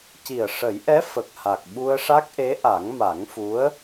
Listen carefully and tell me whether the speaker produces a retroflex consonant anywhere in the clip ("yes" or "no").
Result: yes